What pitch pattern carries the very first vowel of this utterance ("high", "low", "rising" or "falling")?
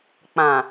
low